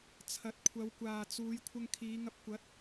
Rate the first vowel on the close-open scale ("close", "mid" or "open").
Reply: open